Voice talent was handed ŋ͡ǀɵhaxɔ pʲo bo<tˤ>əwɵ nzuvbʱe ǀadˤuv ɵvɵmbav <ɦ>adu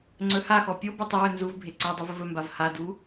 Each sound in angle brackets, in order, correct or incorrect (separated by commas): correct, incorrect